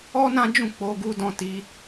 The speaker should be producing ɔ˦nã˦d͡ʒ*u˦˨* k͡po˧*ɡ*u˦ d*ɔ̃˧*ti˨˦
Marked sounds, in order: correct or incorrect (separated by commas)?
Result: incorrect, correct, incorrect